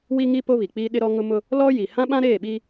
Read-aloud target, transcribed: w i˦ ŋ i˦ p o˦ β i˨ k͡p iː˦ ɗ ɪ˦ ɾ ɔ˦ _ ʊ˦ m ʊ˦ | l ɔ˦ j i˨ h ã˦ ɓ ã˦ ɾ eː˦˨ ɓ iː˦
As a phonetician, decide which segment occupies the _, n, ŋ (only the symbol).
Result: ŋ